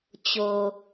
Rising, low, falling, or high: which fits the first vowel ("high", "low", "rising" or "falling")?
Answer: low